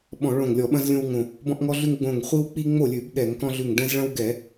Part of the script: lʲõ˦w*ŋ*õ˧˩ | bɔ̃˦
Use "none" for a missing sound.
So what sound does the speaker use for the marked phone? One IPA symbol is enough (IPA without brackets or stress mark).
ŋ